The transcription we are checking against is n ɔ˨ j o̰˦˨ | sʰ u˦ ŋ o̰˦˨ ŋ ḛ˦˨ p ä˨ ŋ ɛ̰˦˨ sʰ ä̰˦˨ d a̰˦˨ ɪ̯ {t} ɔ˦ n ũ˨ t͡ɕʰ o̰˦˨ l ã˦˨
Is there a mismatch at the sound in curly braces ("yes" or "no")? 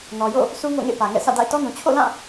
no